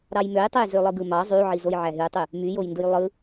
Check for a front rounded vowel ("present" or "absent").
present